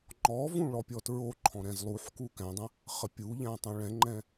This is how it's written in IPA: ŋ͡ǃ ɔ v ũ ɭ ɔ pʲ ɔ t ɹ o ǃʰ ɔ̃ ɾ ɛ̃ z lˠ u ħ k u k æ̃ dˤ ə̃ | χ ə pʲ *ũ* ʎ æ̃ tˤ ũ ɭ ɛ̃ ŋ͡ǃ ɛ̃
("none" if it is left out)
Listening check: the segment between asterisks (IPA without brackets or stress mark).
u